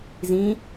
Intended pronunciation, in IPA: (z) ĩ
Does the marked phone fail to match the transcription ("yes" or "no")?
no